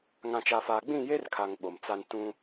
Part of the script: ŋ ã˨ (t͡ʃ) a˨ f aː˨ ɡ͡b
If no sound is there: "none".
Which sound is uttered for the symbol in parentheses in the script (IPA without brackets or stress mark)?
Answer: t͡ʃ